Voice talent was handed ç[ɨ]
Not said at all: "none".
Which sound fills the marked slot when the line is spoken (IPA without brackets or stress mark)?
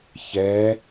ɛ